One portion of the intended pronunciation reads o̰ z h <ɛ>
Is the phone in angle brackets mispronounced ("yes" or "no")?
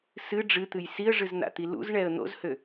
yes